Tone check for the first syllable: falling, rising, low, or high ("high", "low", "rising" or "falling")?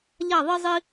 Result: falling